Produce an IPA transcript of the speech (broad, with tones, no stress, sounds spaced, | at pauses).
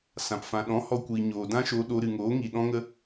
s ã˨ p f ã˨ ɗ ɔ̃˨˦ h ɔ˧ kʷ iː˨ ɲ oː˨ d ã˦ ʃ oː˧ ɗ o˧ ɾ ɨ˨ ŋ oː˨˦ ŋ i˨ ɗ ɔ̃˧ ŋ ə˧